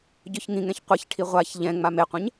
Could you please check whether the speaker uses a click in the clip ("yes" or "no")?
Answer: no